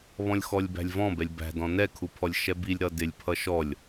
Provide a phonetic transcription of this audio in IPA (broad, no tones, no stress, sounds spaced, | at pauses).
β ɔ̃ lʲ x ɔ lʲ b æ̤ lʲ v ɔ̃ b ɛ lʲ b æ̤ d ɔ̃ n ɛ kʰ u pʰ ɔ lʲ ʃ ɛ b i lʲ ɾ ʌ d ɪ lʲ pʰ ʌ ʃ ɔ lʲ